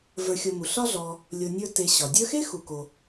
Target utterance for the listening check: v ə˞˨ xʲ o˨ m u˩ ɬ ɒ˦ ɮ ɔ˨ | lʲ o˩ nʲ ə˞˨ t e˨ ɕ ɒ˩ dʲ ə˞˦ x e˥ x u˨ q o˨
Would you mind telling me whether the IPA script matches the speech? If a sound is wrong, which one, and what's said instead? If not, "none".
q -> k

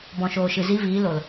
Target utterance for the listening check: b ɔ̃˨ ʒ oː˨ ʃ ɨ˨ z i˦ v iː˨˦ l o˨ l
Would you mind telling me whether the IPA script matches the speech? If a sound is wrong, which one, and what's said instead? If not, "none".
ʒ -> ʃ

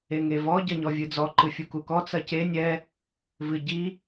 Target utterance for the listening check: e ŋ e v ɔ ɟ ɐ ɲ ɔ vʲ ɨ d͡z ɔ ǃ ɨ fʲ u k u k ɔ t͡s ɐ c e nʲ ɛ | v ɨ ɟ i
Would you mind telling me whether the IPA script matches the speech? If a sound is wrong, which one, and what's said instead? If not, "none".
none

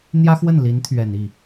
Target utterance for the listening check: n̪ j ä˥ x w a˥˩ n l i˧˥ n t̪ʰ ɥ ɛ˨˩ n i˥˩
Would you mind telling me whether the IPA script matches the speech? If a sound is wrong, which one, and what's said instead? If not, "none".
a˥˩ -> ə˥˩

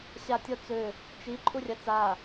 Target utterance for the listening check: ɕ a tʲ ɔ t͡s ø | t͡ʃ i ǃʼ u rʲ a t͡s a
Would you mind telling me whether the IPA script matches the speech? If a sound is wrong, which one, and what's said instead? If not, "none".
none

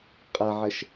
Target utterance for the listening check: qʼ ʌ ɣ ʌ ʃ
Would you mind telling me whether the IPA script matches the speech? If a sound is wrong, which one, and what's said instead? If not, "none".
ɣ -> ʕ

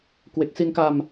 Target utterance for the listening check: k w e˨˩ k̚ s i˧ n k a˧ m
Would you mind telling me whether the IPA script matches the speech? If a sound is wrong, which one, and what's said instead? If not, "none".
none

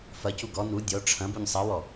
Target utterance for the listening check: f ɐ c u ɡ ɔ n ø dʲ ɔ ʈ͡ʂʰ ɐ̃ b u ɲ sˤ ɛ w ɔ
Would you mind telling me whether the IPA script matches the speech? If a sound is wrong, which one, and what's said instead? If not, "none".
ø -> u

